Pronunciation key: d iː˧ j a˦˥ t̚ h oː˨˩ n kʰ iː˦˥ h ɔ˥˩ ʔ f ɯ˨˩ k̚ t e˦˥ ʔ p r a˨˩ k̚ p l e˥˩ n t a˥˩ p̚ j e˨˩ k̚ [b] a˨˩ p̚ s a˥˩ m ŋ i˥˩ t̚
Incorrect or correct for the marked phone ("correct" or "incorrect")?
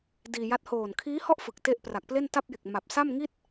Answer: incorrect